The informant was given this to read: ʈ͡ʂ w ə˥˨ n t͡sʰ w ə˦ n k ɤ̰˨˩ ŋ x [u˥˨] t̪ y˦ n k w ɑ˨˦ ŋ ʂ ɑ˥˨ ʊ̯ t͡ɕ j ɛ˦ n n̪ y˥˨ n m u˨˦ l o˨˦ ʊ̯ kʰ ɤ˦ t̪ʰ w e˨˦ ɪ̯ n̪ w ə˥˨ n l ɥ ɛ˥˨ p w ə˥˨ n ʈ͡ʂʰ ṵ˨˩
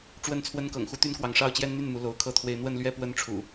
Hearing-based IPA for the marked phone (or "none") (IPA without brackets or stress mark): u˦